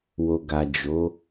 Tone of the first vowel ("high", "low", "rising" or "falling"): low